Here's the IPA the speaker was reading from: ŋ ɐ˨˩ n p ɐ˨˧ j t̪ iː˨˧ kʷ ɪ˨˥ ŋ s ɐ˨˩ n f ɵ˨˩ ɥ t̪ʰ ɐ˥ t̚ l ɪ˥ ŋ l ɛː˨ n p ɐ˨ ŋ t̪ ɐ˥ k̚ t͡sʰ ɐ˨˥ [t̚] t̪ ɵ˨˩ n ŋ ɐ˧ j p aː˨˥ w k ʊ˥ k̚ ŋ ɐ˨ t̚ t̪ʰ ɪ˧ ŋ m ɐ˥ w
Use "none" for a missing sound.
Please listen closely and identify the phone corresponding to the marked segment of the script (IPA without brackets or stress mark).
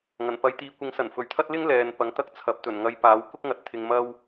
p̚